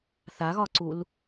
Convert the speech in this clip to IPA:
θaɣɒǀul

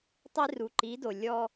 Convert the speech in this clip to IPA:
tˤi˦ ru˨ ǃi˨˦do˨ lʲɔ˦

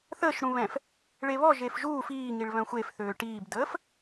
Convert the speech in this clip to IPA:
θəːʃɽũβɛ̃f | ɭeβɔ ʒefʒuː fiː ŋiɭβœ̃xʷefθøː ʈiːbdəːf

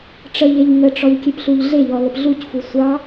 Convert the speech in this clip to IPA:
ʈ͡ʂəʎeʎ ŋəʈ͡ʂɔʎ kʲepɬuʎɮeʎɔ ləpɮucfu sʷɑ

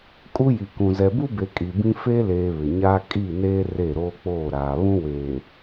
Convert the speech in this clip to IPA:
kʼu˦ji˨kũ˨ zɛ˨bu˦be˨ kʼi˨bĩ˦ fe˦leː˨ βɪ˨ɲaː˦ kʼi˦˨neː˦ re˦˨ɾoː˦k͡poː˦˨ɾaː˨ βũ˦weː˨

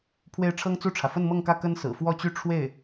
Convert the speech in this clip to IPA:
pʰwe˥˩ɪ̯ ʈ͡ʂʰɤ˥ŋt͡su˥˩ʈ͡ʂʰä˩ fə˥˧nmɤ˥˧ŋkä˥˩ kə˥nsɹ̩˨˩fwɔ˥˧t͡ɕy˥˧ ʈ͡ʂʰwe˥˩ɪ̯

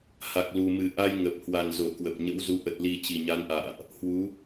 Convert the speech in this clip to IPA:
ha˨˩k̚lu˨˩mɨ˨˩ ʔa˧jŋə˨˩p̚hwa˨˩n zo˧˩kwə˨˩p̚ɲə̰˧˥wzu˨˦ ʔə˨˩t̚li˨˩ t͡ɕi˨˩ɲa˨˦nʔa̰ː˧˨ʔ | hwu˨˦

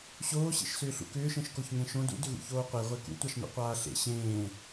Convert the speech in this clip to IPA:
ɕoːɕḛʃsʏːɬṵ kʏːʃẽʃ koçŋẽʃõ dṵdʏɣṵ çoːqʷeʁʷe kṵtʷaʃnṵ qʷaːɬḛ ɕẽː

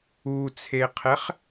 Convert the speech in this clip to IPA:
ut͡sʰeqʰɛχ

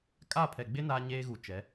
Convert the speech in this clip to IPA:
kʼa˦˨pʰɛ˨ ɡ͡bɪ˦ naː˦ɲeː˦ɣu˨t͡ʃɛ˨˦

